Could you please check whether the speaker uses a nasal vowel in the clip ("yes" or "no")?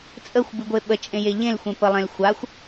yes